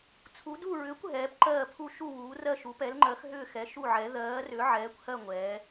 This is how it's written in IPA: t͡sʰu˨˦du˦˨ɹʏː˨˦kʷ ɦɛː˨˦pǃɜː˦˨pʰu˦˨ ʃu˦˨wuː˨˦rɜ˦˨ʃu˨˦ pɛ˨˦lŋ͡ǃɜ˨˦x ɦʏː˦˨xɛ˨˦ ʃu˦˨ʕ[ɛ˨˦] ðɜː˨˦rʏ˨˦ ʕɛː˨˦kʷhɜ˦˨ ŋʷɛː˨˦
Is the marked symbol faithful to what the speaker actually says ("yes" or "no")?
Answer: yes